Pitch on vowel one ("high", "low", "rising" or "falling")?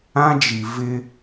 high